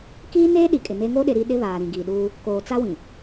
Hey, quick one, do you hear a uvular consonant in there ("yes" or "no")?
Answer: no